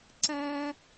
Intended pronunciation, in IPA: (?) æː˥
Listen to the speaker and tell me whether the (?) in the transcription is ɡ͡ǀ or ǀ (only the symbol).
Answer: ǀ